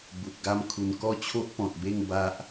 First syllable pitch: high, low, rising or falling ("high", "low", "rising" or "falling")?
low